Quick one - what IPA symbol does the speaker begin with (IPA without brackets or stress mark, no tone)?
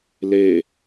l